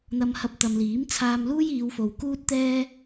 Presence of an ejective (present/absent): absent